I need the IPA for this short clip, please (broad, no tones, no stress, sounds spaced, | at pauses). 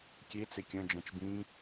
kʲ e t͡s e kʲ ɐ̃ d͡ʒ ɐ̃ t͡ʃ b ĩ